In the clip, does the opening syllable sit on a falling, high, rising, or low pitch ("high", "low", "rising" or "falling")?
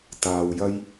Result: low